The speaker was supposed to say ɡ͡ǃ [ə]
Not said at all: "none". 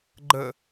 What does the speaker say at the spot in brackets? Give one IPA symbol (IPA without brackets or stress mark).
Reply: ə